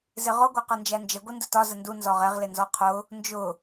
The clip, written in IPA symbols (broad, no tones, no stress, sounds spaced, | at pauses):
z ɪ ʁ ʊ ɡʷ ɛ q ʌ n d͡ʒ æ n d͡ʒ ə ɡʷ i n d ʊ t ɒ z ə n d u n z ɔ ʁ ɛ ʁ l ɪ n z ɔ qʰ ʊ | n d͡ʒ ʊ